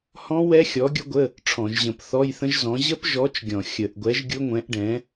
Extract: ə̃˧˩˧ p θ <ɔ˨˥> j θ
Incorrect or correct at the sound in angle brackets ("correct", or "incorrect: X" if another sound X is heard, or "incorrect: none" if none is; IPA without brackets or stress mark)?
incorrect: ɔ˧˥˧